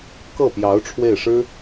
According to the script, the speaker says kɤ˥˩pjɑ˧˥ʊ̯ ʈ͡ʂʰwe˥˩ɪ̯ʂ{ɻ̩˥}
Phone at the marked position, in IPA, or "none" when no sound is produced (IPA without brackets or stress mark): ɻ̩˥